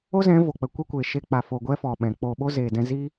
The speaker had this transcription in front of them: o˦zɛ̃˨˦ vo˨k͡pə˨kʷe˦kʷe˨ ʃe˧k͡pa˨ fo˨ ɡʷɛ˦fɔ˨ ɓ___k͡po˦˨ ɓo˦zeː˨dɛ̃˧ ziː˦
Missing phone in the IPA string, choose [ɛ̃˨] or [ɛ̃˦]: ɛ̃˨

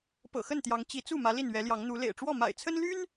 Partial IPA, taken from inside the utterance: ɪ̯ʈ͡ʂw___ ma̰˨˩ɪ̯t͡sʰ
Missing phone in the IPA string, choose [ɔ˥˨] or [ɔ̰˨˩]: ɔ˥˨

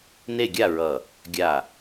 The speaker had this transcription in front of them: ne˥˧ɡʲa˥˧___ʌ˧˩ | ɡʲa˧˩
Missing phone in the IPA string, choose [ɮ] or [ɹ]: ɹ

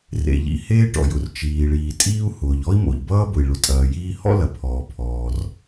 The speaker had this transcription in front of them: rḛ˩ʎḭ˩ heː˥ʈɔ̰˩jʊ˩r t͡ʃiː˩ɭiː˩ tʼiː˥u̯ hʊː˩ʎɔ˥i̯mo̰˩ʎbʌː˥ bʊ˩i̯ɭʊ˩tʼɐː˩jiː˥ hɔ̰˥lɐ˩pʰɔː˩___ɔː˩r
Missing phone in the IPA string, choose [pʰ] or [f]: pʰ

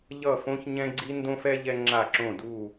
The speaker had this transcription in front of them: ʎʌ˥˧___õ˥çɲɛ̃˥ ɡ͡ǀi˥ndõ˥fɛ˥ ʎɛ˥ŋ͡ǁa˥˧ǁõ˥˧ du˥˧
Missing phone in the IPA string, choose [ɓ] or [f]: f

